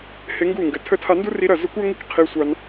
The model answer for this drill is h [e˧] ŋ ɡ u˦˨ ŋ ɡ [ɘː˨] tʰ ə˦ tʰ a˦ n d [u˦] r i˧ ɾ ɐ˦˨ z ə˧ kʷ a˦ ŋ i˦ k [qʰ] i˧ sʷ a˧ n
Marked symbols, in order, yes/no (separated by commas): yes, no, yes, yes